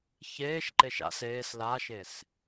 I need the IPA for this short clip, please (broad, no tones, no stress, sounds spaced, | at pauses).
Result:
ç eː ʃ ǃ e ʃ a̰ s eː s l a ʃ e s